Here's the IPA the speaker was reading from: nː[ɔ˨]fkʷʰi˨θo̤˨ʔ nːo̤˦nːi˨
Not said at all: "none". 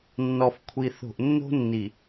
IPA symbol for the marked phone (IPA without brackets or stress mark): ɔ˨